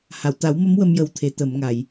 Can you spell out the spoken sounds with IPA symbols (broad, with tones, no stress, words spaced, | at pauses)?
ha˨˩˨wt̪a˨˩˦wmə˧˥m wə˧mjə˨˩wt̪ʰe˨˩˨ t̪ə˨˩˨mŋa˨˩˨j